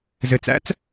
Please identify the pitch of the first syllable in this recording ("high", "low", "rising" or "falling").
low